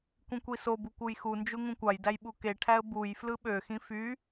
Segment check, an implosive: present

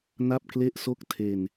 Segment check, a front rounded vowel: absent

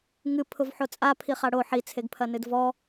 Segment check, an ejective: present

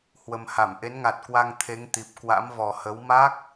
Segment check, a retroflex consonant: absent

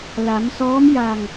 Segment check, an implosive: absent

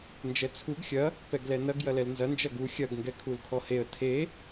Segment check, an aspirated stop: present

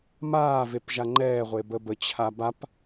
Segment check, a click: present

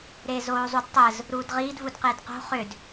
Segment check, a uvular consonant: present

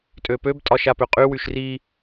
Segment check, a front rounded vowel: present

